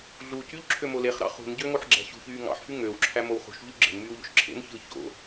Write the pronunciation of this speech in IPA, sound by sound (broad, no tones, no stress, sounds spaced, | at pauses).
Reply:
ɮ u c y ʎ ǁʰ ø m o l e χ ɾ ɑ̰ χ ṳ n ɟ ø ŋ o ħ ɡ͡ǁ æ̤ ɕ ṳ ç yː ŋ ɑ̰ ħ f y ŋ ø w ǁʰ æ m o w χ ṳ ʃ ʎ y ɡ͡ǁ e̤ n m yː w ʎ o̰ ʃ ǁʰ ḛ n ç ɯː ç o̰